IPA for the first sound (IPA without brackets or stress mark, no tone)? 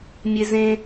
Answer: mʲ